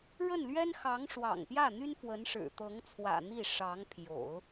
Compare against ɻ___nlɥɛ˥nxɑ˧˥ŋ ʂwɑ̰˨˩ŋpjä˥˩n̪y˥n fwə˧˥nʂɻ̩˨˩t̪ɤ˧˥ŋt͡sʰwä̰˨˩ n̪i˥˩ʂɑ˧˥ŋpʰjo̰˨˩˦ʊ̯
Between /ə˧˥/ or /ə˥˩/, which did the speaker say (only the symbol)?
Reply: ə˥˩